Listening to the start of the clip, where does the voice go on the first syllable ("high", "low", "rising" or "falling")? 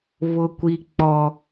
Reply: low